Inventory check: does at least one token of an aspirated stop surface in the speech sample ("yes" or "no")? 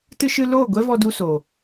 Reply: no